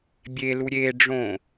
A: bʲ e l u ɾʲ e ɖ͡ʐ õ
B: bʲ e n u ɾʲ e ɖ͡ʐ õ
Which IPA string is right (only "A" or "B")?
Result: A